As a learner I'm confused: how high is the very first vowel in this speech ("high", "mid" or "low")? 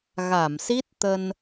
low